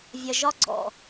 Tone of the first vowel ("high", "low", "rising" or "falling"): low